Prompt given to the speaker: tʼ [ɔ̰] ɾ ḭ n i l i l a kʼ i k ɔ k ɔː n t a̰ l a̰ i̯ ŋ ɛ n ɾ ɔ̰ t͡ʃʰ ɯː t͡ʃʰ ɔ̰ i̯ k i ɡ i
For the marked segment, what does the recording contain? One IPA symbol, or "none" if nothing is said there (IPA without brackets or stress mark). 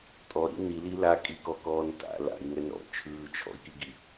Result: ɔ